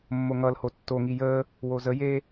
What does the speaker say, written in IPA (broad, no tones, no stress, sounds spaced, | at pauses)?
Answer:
mː o ŋ ʌ l h o tː o ŋ i j əː | w o z ə j eː